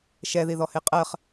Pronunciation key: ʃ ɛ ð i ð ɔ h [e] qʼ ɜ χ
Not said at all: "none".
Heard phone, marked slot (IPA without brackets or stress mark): e